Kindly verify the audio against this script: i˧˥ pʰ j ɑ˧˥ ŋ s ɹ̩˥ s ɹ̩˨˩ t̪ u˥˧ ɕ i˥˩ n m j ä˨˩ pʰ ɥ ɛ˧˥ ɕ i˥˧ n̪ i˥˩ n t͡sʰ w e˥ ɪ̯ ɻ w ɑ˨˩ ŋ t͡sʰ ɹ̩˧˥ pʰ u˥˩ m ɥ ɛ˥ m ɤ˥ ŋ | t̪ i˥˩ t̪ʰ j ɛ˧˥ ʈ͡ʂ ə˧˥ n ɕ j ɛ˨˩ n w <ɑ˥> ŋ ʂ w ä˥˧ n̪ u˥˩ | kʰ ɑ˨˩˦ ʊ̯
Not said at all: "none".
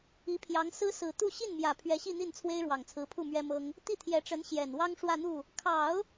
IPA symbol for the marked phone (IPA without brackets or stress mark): ɑ˥